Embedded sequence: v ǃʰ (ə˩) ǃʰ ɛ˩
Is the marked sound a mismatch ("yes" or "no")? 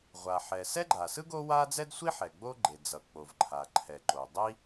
yes